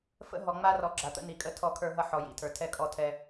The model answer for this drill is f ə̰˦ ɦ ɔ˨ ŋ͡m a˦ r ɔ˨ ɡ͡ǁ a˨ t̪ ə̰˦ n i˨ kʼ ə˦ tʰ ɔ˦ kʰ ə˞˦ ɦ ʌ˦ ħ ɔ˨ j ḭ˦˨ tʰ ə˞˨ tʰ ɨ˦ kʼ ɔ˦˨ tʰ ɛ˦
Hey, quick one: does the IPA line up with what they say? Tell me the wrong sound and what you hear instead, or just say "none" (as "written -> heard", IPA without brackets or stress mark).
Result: ɨ˦ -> ɛ˦